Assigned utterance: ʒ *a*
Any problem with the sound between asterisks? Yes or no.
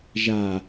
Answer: no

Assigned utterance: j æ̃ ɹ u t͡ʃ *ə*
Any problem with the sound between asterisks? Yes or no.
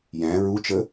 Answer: no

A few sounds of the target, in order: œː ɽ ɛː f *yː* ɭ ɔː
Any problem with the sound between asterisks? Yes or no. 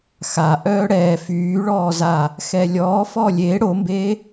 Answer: no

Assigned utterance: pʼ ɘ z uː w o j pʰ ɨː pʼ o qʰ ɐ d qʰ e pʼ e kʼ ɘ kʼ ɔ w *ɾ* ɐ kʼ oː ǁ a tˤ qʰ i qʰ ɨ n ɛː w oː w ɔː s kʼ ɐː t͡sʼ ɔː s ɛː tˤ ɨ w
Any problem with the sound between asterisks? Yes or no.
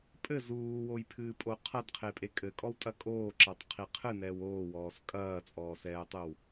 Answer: yes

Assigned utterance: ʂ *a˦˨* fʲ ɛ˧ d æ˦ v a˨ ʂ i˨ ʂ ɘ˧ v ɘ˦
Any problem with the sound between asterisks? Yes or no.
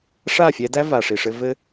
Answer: no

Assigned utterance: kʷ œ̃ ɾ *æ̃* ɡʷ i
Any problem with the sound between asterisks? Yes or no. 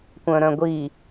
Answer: yes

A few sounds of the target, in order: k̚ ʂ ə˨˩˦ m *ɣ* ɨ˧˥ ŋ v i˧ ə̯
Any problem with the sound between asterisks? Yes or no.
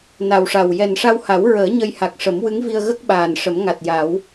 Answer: yes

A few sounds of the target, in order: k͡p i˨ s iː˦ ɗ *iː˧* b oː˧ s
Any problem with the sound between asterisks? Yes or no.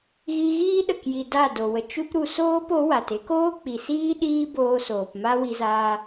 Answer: yes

